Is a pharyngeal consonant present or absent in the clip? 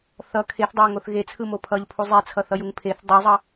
absent